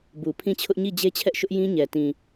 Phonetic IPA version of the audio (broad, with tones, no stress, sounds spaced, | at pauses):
b u˨ pʰ ĩ˦˨ t͡ɕʰ ʊ˦ ʔ ɲ i˦˨ d͡ʑ e˦ t͡ɕʰ ɛ˦ ʔ ʃ ʊ˦ ʔ j ĩ˦ ɲ ɛ˨ t ĩ˨